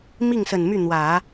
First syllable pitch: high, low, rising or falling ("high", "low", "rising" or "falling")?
falling